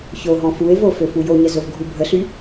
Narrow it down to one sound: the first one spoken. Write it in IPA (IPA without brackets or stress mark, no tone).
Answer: ç